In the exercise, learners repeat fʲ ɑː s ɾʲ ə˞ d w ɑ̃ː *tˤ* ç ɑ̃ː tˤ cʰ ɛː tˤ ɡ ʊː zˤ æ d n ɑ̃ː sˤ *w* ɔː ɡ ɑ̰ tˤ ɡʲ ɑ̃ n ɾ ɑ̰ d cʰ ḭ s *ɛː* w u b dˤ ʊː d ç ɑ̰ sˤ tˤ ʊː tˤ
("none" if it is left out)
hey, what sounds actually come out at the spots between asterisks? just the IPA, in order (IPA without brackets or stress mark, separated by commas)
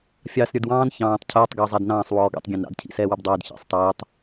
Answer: n, w, ɛː